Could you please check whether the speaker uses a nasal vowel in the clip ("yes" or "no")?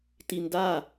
no